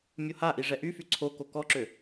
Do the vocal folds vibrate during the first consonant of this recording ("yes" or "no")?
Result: yes